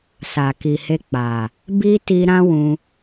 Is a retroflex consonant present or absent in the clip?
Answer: absent